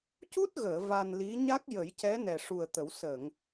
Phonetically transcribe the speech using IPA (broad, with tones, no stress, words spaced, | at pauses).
cu˦˥t̚ɣəː˨˩˨ va˧nli˧˥ ɲa˦˥k̚jə˨˩˦jcɛ˧˥ nɛ˨˩ʂu˨˩ə̯t̪ə˨˩˦w sə˨˩˨ŋ